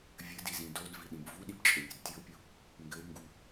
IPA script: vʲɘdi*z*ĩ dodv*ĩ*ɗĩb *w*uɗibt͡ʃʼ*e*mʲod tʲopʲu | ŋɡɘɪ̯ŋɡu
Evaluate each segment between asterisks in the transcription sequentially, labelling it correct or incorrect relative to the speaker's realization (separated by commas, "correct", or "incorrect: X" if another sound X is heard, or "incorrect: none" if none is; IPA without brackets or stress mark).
correct, incorrect: i, incorrect: v, incorrect: ɘ